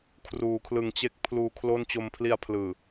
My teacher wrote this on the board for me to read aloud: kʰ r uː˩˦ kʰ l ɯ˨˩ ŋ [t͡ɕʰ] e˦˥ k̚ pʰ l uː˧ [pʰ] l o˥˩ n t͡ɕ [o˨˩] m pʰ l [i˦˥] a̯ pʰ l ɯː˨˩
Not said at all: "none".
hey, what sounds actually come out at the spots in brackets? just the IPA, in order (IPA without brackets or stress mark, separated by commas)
t͡ɕ, kʰ, o˧, i˧